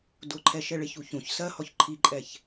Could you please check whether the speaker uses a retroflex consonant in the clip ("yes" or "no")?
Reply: yes